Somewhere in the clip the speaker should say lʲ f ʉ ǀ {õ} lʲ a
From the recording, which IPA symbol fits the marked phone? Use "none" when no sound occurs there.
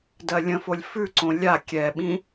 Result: õ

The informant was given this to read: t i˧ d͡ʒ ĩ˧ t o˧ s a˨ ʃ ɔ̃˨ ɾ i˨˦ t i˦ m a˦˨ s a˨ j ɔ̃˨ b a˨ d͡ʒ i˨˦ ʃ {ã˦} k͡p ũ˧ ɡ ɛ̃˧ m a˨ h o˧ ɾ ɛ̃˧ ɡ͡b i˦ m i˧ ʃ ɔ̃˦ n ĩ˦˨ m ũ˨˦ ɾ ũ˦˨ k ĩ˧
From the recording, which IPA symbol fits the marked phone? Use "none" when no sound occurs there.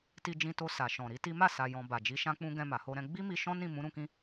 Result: ã˧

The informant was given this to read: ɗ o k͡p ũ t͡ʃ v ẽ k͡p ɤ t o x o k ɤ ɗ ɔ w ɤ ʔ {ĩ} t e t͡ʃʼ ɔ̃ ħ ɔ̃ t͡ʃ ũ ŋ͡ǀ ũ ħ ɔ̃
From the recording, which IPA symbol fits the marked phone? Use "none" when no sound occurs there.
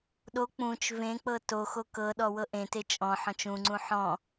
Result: ẽ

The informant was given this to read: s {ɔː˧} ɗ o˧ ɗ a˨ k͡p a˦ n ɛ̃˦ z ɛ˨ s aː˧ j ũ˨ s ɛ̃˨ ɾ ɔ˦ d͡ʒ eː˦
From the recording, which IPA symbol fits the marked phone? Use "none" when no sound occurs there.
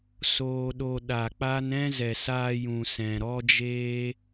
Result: oː˧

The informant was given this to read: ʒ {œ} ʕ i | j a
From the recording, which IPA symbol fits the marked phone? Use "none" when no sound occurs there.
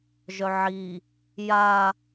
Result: œ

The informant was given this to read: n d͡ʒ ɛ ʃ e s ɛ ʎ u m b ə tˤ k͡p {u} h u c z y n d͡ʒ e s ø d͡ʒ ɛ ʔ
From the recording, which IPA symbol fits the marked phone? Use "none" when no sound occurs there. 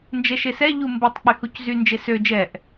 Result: y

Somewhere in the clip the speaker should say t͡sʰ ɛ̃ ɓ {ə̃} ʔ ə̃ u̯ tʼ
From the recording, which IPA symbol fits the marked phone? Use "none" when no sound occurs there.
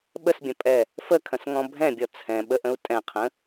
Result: ə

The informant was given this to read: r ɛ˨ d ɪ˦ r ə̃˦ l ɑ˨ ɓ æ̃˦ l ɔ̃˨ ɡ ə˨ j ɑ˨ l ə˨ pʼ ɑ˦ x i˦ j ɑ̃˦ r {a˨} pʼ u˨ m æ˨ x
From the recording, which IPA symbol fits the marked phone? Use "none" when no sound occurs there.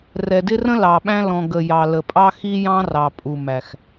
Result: ɑ˨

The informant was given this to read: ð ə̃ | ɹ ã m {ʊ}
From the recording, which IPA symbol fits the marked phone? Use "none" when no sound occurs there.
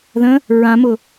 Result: ʊ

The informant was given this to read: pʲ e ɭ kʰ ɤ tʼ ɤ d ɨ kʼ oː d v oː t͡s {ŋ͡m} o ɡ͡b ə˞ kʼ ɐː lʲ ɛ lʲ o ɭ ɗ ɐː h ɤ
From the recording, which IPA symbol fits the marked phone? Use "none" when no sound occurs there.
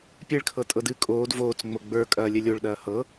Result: ŋ͡m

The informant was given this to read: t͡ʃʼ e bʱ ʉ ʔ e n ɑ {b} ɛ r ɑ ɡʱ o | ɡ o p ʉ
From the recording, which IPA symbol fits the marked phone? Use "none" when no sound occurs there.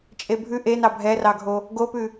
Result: bʱ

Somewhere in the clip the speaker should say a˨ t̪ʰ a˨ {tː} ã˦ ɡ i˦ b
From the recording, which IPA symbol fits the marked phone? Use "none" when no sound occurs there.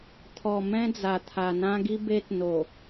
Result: n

